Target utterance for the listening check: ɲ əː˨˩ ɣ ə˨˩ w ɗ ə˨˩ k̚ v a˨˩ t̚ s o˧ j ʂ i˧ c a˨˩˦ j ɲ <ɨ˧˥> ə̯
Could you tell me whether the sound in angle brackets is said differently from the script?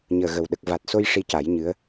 no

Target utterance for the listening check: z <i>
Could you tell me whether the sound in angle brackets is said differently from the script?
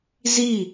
no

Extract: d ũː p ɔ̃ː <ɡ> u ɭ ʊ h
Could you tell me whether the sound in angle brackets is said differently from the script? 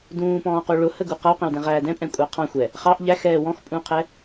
yes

